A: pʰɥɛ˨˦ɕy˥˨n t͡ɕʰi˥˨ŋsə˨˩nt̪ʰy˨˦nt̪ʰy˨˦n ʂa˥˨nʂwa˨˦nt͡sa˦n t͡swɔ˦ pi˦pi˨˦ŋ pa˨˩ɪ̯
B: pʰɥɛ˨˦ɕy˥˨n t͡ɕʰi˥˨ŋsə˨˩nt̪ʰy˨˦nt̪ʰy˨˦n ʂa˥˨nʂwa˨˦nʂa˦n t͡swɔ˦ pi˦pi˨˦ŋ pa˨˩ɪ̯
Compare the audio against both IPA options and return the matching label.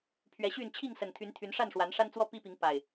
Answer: B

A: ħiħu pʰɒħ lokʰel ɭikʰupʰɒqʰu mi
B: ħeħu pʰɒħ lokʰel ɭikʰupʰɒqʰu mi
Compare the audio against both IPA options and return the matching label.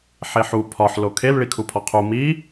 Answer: B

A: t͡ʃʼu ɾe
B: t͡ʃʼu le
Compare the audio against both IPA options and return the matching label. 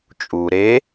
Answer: A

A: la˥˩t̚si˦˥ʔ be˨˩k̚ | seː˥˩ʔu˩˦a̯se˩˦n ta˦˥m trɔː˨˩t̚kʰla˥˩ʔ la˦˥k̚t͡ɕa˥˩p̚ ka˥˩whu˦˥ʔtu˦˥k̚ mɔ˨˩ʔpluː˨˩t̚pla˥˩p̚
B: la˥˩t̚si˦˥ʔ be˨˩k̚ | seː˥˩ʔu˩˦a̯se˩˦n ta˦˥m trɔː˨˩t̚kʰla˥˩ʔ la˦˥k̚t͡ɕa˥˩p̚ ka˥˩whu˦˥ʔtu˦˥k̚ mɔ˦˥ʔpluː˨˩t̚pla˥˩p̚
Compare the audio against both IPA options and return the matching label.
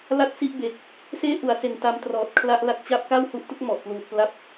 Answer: A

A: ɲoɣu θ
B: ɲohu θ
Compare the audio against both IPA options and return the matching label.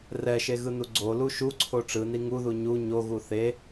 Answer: A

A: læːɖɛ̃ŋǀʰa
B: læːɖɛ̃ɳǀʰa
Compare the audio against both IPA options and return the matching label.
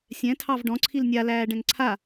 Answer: A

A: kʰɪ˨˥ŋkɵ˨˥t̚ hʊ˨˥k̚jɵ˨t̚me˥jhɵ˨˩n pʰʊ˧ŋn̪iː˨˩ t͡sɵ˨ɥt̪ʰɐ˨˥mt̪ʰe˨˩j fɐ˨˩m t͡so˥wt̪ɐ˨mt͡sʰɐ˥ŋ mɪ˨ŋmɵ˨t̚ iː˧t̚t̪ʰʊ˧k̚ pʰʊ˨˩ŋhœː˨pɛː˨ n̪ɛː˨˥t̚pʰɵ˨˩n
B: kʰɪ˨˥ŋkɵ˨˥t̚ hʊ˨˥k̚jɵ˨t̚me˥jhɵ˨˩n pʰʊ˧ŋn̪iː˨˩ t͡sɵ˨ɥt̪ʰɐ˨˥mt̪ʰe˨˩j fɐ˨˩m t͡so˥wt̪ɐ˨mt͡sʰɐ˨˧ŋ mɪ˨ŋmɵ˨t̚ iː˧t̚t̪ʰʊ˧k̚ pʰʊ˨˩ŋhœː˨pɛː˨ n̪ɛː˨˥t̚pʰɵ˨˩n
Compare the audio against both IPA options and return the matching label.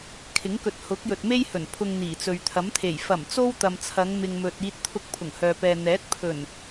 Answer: B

